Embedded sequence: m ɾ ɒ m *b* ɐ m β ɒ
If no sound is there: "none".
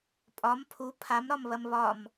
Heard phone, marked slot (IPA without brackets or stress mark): β